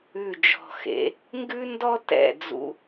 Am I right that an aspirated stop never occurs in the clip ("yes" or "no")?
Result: yes